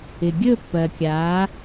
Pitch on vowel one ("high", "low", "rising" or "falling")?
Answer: low